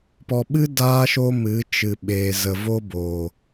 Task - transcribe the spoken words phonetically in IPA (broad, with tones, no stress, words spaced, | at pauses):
pɔ˨ɓɨ˦ daː˦ʃo˦ mɨ˨˦t͡ʃɨ˨ɓeː˨ zə˨vo˦bo˨